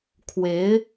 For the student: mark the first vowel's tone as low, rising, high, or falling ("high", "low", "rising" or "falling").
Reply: rising